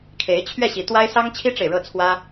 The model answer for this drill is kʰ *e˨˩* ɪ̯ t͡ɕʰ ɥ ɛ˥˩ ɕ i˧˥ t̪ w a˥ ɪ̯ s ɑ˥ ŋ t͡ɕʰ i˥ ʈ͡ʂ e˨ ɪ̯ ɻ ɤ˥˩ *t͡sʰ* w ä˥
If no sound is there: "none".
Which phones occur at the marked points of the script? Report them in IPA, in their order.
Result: e˧˥, t͡sʰ

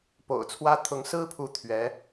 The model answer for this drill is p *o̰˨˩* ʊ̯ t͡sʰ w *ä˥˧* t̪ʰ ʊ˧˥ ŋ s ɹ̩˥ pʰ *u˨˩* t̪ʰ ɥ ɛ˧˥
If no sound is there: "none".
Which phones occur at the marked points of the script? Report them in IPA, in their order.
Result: o̰˨˩, ä˥, u˧˥

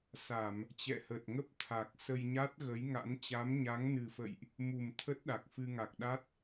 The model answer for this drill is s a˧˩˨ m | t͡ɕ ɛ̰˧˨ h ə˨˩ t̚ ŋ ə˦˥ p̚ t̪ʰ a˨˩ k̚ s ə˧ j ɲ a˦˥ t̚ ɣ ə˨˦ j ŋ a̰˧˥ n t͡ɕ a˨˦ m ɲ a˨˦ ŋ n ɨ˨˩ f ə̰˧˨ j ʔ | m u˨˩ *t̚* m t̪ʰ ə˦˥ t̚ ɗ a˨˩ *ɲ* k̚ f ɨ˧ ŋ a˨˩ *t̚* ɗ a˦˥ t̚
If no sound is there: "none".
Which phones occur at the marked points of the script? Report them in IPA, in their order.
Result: none, none, k̚

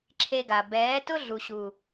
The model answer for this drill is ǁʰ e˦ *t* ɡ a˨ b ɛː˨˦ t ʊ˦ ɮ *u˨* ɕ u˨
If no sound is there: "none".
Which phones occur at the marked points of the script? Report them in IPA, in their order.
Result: none, u˨

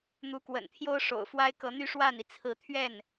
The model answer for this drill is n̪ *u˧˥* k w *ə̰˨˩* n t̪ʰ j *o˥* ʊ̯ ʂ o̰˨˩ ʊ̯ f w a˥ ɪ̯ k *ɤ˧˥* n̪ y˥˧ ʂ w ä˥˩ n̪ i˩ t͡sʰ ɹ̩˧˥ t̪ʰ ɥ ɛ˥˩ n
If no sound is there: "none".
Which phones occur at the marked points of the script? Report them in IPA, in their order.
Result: u˧˥, ə̰˨˩, o˥, ɤ˧˥

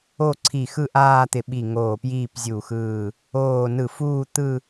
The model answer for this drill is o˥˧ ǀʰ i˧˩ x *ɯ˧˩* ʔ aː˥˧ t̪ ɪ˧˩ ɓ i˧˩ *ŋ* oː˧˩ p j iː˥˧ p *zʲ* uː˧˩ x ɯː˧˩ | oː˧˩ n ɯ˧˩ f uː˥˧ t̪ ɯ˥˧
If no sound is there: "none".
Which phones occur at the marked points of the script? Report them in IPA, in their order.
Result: ɯ˥˧, ŋ, zʲ

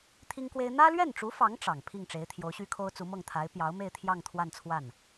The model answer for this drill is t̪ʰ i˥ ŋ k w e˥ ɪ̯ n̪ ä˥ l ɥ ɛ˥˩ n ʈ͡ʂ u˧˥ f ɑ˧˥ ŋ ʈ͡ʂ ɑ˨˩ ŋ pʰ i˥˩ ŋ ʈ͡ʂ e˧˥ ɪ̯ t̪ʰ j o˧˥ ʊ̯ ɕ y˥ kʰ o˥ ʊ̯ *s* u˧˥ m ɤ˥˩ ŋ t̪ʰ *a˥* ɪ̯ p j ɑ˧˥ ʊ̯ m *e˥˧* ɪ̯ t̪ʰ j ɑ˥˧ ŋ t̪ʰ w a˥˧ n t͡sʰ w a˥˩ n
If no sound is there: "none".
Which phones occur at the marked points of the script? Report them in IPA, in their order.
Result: t͡s, a˧˥, e˥˧

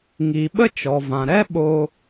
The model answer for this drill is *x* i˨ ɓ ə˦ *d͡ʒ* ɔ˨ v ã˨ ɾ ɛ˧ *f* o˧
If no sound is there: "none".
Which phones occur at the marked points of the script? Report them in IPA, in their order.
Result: ŋ, t͡ʃ, ɓ

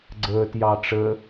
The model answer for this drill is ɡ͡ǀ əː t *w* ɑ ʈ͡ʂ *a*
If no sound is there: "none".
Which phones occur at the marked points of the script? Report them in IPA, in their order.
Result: j, ə

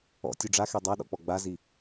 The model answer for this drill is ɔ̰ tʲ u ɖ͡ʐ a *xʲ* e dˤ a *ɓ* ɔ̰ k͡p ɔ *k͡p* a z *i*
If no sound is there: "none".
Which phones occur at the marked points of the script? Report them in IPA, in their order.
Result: x, ɗ, ɡ͡b, i

